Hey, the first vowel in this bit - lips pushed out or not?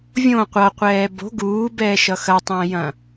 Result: yes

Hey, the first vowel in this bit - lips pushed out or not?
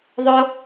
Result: yes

